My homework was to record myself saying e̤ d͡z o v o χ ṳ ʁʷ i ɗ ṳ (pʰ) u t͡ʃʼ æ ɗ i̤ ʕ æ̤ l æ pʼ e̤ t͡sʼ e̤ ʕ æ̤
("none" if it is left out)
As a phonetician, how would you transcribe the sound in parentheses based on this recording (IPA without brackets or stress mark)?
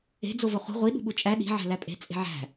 ɓ